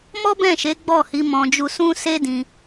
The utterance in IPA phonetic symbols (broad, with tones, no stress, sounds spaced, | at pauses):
m ɔ˦ b ɛ̃˦˨ ʃ e˨˦ ɡ͡b ɔ˦˨ h i˨˦ m ɔ̃˧ d͡ʒ u˧ s ũ˦ s e˦ d ĩ˧